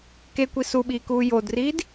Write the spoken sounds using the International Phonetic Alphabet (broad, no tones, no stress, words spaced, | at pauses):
kekʷi suɓiːkuː jodriːd